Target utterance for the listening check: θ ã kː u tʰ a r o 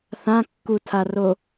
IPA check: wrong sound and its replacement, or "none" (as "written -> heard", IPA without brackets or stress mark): none